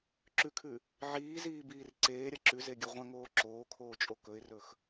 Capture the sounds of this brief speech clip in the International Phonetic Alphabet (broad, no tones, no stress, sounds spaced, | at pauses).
ǁ ʉ kʰ ʉ | ʕ iː z iː b iː r ǀ eː ɾʲ ɐ ǁ ʉ z e ɡʲ ɵ ʁʷ ɐ̃ ŋ oː ǁ oː kʰ oː t͡ʃʼ o k ɵ ɪ̯ r ɵ x